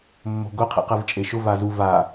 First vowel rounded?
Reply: yes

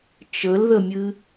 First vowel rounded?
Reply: no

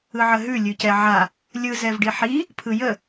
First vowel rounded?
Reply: no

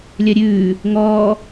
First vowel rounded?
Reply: yes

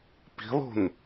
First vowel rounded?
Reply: no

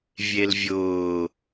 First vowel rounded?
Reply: no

